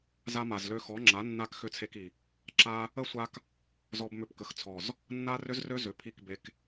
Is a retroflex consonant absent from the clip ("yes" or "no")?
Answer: yes